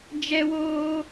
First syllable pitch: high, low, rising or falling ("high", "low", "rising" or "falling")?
high